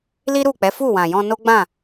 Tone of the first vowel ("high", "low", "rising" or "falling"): high